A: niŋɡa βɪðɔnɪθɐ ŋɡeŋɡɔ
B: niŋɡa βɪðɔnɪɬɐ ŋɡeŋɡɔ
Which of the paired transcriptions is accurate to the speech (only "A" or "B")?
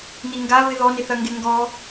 A